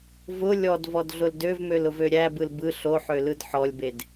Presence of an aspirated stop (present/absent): absent